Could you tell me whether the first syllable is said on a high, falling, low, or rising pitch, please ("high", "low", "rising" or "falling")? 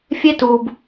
high